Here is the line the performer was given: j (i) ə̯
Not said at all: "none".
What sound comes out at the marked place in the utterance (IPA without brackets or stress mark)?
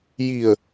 i